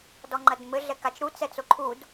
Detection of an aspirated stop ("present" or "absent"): present